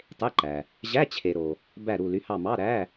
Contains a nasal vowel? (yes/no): no